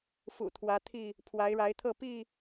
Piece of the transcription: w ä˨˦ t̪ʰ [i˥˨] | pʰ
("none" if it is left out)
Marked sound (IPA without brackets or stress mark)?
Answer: i˥˨